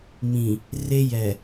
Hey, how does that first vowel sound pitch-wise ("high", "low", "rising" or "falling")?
low